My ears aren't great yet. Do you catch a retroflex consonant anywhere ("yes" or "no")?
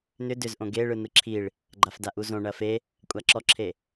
yes